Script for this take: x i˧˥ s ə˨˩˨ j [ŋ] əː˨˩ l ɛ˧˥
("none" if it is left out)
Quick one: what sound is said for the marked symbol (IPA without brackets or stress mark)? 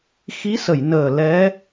n